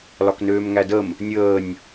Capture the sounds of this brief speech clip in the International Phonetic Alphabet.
l ɒ k n øː m ŋ æ d ə m | nʲ əː nʲ

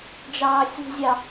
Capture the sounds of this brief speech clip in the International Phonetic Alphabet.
d͡ʒ ɑː xʲ ṳ zʲ ɑ

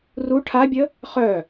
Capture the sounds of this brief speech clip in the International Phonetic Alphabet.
r u ʈʰ a bʲ ə | χ œ

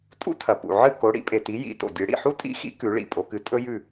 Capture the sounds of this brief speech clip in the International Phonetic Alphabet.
tʼ ṵ˥ tʰ ɐ˩ p ṵ˩ ʕ ɨ˥˨ k o˩˧ ɽ ḭ˩˧ pʼ e˩ t i˩˧ j ḭ˩˧ t o̰˩ dʲ ɨ˩˧ ɽ ḭ˩ ħ u˥ tʼ ḭ˥˨ x ḭ˥ k ʉ˩˧ ɭ ḭ˩ pʼ o˩˧ k ɨ˩˧ tʼ ɵ˥ j ʉ˥˨

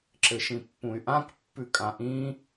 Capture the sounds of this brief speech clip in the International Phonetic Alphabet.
ǁ ɘ ʃ ĩ pː ũ y̯ ʔ ã k pː ʉ kʼ ã ʔ ĩ

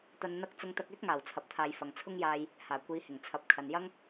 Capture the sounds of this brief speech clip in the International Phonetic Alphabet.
t̪ ɐ˧ n n̪ ɐ˥ k̚ t͡s ʊ˧ ŋ t̪ ɐ˧ k̚ ɛː˥ k̚ ŋ aː˨˩ w t͡sʰ ɐ˨ p̚ t̪ʰ aː˨ j f ɐ˨ ŋ t͡sʰ ʊ˥ ŋ j aː˧ j | h aː˨˩ kʷ iː˨˧ h ɪ˨˩ ŋ t͡sʰ ɐ˨˥ p̚ kʰ ɐ˨ n j ɐ˥ ŋ

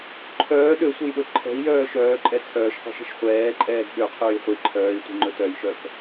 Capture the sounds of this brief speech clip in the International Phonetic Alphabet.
ǃʰ œː ɗ ø sʷ e j ɗ ɵ ǃʰ ɛ̤ i̯ j œː ʃ œː ǃʼ ɛ t͡sʰ œː ʃ qʷ i̤ ʃ e̤ ʃ χʷ ɛː ǃʼ ɛː ɡ ɓ ø qʰ ɵː j χʷ i ǃʰ œː i̯ tʷ i̤ ŋ͡ǃ ɵ t œ j ʃ œ k

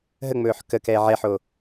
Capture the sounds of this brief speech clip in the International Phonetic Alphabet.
ɦ ə ŋ͡m ɵː ħ k ə k ɛː ʕ ɛ ħ oː

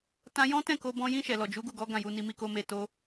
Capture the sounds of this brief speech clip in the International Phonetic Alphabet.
t ã˧ j ɔ̃˦ t ɛ̃˦˨ k o˧ b ɔ̃˧ j ĩ˧ ʃ ɛ˨ l ɔ˨ d͡ʒ u˨˦ ɡ u˦˨ ɡ ɔ˨˦ ɡ ã˦˨ j u˧ n i˧ m i˧ k o˧ m e˧ t o˦

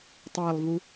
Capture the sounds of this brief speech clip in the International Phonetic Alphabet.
tˤ æ lˠ v u

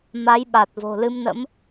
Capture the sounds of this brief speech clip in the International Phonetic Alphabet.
m a˨˦ j ɓ a˨˩ t̚ v o̤˨˩ l ɨ˧ m n ə̰˧˥ m

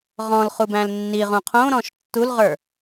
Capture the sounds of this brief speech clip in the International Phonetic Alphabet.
ʁ ɔ̃ l χ u b æ̃ l nː i ʁ ũ qʰ õ ɾ ɔ̃ ʃ tː u l ʁ ə˞

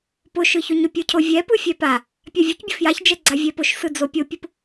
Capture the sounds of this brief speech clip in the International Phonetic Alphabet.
p ʊ ʃ ɯ ç ʊ ɲ ʊ pʲ ɯ cʰ o vʲ ɛ p ɯ fʲ ɛ p a | pʲ a vʲ ɯ c bʲ ʊ f j a ç d͡ʒ ɛ ɡ͡ǀ a vʲ ɛ p ʊ ʃ s ɯ d͡z o pʲ o pʲ ɯ p

